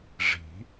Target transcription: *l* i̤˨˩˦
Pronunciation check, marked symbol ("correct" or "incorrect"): incorrect